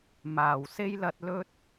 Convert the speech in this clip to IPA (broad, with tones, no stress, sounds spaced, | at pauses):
m aː˨˩ w s e˥ j l ɐ˧ t̚ l ɵ˥ t̚